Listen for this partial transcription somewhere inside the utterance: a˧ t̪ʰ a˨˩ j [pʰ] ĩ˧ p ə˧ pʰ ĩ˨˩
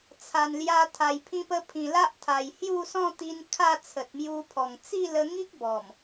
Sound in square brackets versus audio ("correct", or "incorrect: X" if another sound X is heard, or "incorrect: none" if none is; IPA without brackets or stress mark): correct